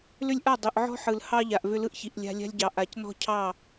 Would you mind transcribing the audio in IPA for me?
l ʏ˦ lʲ ʔ a˦˨ dˤ ʏ˨ ʔ ʕ ɔ̤˦ ħ ɯ˨ l h ɑ˦ ʎ a˨ ʔ v ʏ˦ l ɯ˦ ʔ ç i˨ ʔ lʲ a̤˦ lʲ a̤˦ lʲ ɟ ɑ˨ ʔ a˨ c n ɔ̤˦ cʰ ɑ˦˨

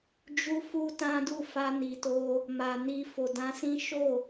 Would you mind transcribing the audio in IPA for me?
d͡ʒ u˧ f u˦ t ã˦ d u˦˨ f a˧ n i˨ t o˧ | m a˨ n i˧ f o˨ d ã˧ s ĩ˦ ʃ o˦˨

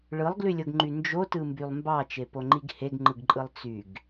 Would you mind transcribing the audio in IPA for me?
ɭ ɯ lˠ ɡ l y lʲ o ɡ ŋ͡ǃ y n d͡ʒ o t ɯ m b y lˠ m b ɑ t͡ʃ e p o ŋ͡ǃ i ɡ h e ɡ ŋ͡ǃ ɯ ɡ ǃʼ ɯ lˠ t͡s y ɡ

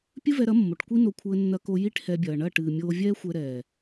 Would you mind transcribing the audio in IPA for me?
pʲ ɨ˦ v ɛ˧ ɾ ɐ˨˦ mː o˨ ʈ kʷ i˦ n o˧ kʷʰ ɘː˧ nː ɐ˧ k o˧ j i˦ ʈ h ɛ˧ bʲ ɐː˨ ɳ ɐ˦˨ ʈ ɨː˨ mʲ oː˧ vʲ ɛː˦ xʷ ɛ˧ ɾ ɛː˨

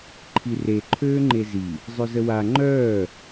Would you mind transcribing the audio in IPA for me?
ǃʰ i r e ǃʰ øː ŋ͡ǃ e z i | zˤ œ z ə w a ŋ͡ǃ œː

